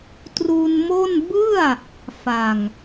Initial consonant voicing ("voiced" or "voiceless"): voiceless